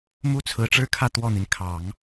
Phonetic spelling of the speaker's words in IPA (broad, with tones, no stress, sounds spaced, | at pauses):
m u˥ t͡sʰ ɹ̩˧˥ ʈ͡ʂ ɻ̩˥ kʰ ä˥˧ t̪ w ɔ˥˩ n̪ i˩ n kʰ ɑ˨˩˦ ŋ